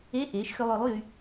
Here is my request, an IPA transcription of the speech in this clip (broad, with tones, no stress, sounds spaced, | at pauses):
e˧˥˧ ʔ eː˩˥ ʃ x ø˧ lˠ œ˩˥ lˠ j y˧